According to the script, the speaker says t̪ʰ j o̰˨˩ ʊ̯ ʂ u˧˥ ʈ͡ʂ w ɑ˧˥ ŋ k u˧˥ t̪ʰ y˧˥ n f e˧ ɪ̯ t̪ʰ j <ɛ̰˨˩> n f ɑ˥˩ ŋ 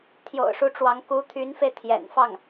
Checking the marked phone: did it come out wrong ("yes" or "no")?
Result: no